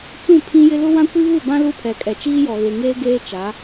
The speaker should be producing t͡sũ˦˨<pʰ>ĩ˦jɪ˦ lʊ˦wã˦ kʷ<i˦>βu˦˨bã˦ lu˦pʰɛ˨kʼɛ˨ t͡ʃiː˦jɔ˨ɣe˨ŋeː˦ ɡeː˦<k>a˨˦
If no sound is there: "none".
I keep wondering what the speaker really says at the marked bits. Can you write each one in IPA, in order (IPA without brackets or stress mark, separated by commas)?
pʰ, i˦, t͡ʃ